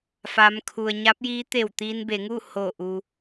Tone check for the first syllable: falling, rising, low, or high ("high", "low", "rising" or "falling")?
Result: rising